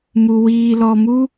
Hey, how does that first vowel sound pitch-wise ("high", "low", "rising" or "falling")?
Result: low